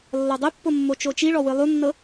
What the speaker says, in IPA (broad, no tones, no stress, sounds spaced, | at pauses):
lː ɔ dˤ e pː o mː o t͡ʃ o t͡ʃ i ɭ ɔ w ɯ lˠ u nː ɤ